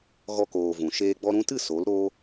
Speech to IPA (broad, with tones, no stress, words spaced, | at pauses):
ɣɔ˧koː˨ vũ˨ʃeː˦ ɡ͡bɔ˧ɾũ˧tɨ˦˨ so˨˦lɾoː˦